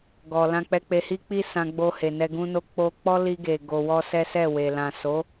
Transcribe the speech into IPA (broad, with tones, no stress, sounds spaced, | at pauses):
ɡ ɔ˨ l ã˧ k͡p ɛ˧ k͡p e˧ h i˦ k͡p i˦ s ã˧ ɡ͡b o˧ h e˨ n ɛ˧ ɡ ũ˧ n o˧ k͡p o˧ k͡p ɔ˦ l i˧ ɡ e˨ ɡ o˧ w ɔ˦ s ɛ˦ s ɛ˦˨ w e˨ l ã˨ s o˨˦